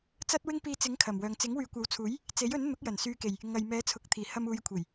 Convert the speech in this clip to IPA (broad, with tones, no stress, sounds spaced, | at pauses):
t͡s ɐ˥ t̚ w ɪ˥ ŋ p iː˧ t͡s ɪ˨˥ ŋ kʰ ɐ˨˩ m w œː˨ ŋ t͡s ɪ˨˥ ŋ w yː˨ kʷ ɐ˨˥ w t͡sʰ uː˨˥ j | t͡s e˨˥ j ɵ˨˥ n n̪ ʊ˨˥ k̚ j ɐ˨˩ n s yː˨ k e˨˩ j | ŋ ɐ˨ j m ɛː˨˥ t͡sʰ ʊ˨ k̚ t̪ʰ iː˨˩ h ɐ˧ m uː˨˧ j kʷʰ e˨˩ j